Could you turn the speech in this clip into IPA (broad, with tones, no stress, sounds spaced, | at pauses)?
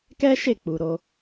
k ɛ˦ ʃ e˦˨ k͡p u˨ ɾ o˧